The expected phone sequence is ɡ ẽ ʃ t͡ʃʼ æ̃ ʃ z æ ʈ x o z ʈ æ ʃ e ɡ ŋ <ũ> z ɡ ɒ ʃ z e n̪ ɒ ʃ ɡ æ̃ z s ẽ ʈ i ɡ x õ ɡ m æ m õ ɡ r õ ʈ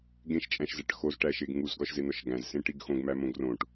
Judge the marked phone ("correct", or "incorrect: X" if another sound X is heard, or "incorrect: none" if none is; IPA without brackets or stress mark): incorrect: u